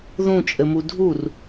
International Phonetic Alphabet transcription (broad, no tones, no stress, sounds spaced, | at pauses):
ð ũ t͡ʃʼ ɘ m u dʱ u r